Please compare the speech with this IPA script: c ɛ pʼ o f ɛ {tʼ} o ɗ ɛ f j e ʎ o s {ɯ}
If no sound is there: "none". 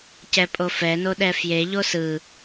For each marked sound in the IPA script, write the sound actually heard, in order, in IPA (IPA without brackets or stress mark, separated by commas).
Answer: n, ɯ